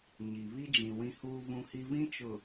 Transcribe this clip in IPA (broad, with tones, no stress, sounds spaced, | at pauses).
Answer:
ɲ i˨ β i˦ d͡ʒ ĩ˨ w ĩ˦ h uː˦ β ũ˦ h i˦ β ĩ˦ t͡ʃ ʊ˨